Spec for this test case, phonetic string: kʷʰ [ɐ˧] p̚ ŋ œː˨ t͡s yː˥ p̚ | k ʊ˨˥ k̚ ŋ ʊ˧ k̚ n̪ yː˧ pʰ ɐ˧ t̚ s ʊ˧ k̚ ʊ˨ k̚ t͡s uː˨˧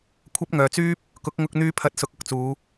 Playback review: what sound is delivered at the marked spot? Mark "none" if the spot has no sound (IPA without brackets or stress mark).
ɐ˥